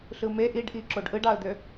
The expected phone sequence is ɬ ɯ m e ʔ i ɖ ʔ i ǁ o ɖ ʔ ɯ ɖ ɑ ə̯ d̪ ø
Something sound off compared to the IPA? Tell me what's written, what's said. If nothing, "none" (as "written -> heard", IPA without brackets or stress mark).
none